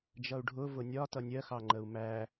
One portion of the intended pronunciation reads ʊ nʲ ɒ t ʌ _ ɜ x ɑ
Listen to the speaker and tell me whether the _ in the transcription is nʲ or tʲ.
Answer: nʲ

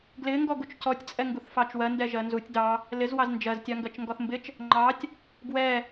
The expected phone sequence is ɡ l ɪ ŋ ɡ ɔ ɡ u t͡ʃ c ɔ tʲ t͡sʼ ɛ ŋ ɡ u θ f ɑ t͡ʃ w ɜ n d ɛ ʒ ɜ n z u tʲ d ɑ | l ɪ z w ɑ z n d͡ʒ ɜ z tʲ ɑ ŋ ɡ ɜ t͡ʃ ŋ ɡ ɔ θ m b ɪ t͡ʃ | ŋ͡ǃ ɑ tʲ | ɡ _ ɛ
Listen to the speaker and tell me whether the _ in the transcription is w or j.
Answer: w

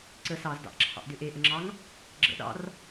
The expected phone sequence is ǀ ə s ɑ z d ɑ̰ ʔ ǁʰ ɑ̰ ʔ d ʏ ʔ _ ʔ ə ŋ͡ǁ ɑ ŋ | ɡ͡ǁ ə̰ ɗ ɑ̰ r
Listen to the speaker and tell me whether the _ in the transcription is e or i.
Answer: e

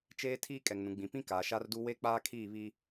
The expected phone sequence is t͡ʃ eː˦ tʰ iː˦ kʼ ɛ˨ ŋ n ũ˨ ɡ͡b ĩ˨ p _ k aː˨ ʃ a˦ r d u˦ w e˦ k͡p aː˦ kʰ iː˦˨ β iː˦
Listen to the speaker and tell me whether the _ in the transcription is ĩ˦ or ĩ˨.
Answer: ĩ˦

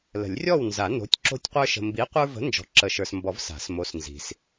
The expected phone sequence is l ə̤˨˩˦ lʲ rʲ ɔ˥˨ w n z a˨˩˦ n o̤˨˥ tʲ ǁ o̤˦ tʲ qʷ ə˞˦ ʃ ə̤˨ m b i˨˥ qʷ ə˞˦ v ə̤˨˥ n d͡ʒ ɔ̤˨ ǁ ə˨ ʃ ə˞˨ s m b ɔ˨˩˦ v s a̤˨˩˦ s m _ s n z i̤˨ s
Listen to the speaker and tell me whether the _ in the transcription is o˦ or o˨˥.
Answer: o˨˥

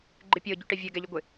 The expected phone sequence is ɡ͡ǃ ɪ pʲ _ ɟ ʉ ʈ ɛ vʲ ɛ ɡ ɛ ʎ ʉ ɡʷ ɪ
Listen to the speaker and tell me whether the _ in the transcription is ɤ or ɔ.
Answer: ɤ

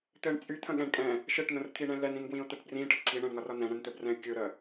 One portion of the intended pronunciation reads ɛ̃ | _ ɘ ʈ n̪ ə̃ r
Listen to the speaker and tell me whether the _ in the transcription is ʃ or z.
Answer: ʃ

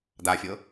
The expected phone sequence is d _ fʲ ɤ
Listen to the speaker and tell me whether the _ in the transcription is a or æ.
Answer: a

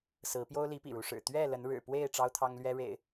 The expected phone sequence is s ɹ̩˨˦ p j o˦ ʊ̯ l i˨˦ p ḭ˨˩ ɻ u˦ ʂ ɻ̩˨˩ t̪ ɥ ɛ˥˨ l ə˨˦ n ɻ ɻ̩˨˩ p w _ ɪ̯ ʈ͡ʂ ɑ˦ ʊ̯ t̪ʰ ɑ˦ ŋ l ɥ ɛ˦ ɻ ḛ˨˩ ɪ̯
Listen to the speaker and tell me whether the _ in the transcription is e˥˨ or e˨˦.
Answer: e˥˨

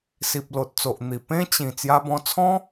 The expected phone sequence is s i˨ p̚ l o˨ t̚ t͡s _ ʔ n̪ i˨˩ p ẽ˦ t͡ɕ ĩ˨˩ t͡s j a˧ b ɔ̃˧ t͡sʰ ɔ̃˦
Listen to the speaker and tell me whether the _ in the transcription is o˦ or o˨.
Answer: o˨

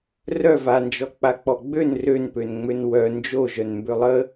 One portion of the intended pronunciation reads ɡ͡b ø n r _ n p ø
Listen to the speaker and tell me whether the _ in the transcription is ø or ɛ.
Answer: ø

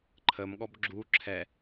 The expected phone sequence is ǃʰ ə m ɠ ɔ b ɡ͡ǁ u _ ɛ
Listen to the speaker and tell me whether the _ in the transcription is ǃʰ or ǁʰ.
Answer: ǁʰ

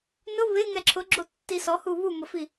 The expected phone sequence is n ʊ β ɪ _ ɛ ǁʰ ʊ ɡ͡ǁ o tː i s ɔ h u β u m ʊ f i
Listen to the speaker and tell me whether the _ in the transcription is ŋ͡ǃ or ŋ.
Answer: ŋ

